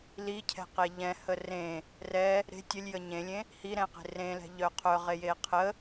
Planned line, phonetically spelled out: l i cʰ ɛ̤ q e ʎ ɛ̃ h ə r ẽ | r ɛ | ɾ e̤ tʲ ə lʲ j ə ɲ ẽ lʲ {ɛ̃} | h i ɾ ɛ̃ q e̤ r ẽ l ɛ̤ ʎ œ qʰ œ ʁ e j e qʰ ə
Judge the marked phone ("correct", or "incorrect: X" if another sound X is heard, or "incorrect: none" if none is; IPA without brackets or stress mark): incorrect: ẽ